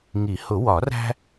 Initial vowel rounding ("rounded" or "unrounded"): unrounded